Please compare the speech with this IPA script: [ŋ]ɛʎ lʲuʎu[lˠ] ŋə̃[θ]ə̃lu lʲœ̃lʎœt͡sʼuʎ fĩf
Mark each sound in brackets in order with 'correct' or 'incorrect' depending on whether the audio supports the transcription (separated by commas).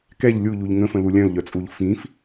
incorrect, incorrect, incorrect